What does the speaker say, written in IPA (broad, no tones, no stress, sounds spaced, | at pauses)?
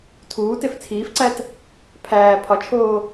tʰ uː t e f t͡sʰ iː f ǀ æ t | pʰ æː pʰ ɒ t͡ʃʰ oː